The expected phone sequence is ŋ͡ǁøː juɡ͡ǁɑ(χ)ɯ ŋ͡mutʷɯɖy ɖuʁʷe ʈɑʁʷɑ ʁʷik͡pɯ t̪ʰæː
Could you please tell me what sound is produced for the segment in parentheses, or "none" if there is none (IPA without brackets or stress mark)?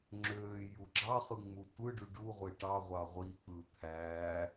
χ